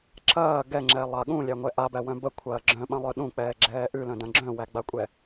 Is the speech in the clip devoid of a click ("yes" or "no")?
no